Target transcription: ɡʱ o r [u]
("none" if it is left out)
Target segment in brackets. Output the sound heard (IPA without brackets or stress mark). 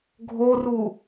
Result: u